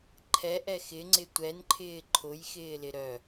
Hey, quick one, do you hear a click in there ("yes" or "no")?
yes